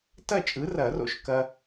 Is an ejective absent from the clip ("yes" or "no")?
no